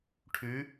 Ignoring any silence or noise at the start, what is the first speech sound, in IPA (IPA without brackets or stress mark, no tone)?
ʈʰ